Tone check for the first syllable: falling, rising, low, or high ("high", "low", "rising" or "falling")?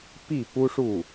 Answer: falling